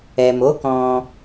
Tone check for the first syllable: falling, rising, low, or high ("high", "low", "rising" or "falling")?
low